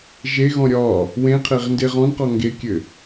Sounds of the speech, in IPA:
ʒ e ɣ ɔ̃ ɾʲ ɒː | w ẽ qʰ e ʁ n d e ʁ ɔ̃ n q ɔ ŋ ɡ e kʲ ɘ

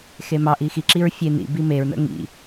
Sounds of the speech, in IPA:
x e m ɑ ʔ i x i ǁ i ɹ fʲ e n ḭ b i m e ɹ n ə̰ ŋ ḭ

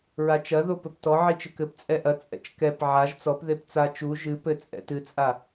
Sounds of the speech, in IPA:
ɹ a t͡ʃ ɐ ð o p ɘ p t ɔ ʕ i t͡ʃ ɘ k ɘ p t͡sʼ ɛ ʔ ɐ t͡sʼ ɛ̰ t͡ʃ k ɛ p ʕ a ʒ t͡s ɔ p ð e p t͡s a t͡ʃ u ʒ ɨ p ɘ t͡sʼ ɛ̰ t ɨ t͡sʼ a

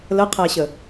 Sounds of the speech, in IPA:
l ə qʰ æ ɕ ə

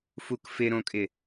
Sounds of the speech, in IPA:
f u k f ɪ ɾ õ kʼ ɪ

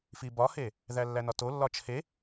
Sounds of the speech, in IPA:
f i b ɒ h e | ð æ lː æ n ɒ t o lː ɒ t͡ʃʰ e

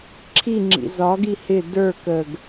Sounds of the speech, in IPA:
ǁʰ i ŋ͡ǁ ḭ z ɒ ɡ i h ɪ d ə˞ k ə ɡ

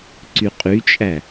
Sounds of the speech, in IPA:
ǀ y qʼ y t͡ʃʼ æ

